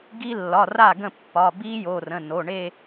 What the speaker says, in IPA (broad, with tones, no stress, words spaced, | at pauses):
ɡi˦˥ lːɒ˩˧˩ra˥˩ɡə̃˥˩ pːɒ˩˧˩ bi˦˥ jo˩˧˩rə̃˩˧˩ no˩˧˩ɳe˥˧